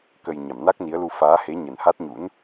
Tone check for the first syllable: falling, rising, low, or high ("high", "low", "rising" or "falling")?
low